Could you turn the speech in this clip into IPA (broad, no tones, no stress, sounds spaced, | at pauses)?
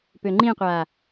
p ø ŋ͡ǃ ĩ qʷ a